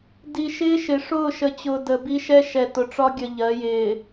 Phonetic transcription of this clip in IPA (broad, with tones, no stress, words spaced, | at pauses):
di˨ʃɪː˦ʃɪ˨ ʂʊː˦˨ʃə˨t͡ɕʊː˨ də˨bi˦ʃɛ˦ ʃɛ˨tʊ˨ʈ͡ʂɒ˦ ɡʲə˨ʎɜ˨˦jɪː˨